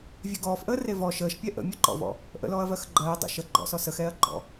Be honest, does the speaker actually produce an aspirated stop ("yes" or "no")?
no